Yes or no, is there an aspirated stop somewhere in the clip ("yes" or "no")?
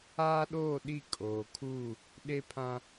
yes